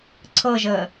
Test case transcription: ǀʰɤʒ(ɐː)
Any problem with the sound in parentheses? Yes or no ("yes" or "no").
yes